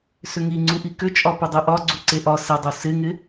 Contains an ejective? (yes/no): yes